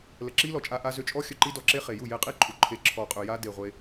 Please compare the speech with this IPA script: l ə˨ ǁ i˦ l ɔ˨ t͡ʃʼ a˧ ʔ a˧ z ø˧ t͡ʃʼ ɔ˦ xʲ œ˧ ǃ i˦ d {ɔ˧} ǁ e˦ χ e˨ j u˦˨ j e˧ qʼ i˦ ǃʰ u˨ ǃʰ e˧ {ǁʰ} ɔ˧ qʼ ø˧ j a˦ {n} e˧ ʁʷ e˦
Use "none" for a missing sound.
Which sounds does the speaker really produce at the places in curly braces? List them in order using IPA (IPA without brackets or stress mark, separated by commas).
ɔ˧, ǁʰ, d